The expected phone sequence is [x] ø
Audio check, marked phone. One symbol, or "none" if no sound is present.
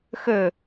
x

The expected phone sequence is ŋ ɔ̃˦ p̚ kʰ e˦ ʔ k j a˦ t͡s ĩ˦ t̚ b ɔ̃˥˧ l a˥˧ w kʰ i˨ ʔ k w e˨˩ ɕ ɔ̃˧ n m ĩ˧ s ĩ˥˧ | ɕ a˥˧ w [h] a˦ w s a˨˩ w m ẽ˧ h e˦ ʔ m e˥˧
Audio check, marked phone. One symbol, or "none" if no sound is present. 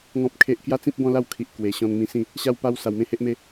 p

